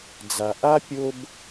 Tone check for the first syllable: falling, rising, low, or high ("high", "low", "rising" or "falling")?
low